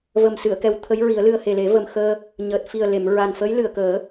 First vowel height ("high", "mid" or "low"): mid